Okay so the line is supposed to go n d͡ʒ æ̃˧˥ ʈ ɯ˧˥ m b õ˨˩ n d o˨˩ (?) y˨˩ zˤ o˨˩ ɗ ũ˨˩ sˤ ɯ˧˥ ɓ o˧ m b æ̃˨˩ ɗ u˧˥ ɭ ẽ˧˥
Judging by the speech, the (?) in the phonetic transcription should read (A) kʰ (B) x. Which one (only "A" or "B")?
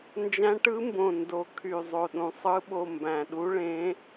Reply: A